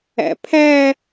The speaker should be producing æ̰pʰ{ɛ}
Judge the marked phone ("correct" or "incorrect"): incorrect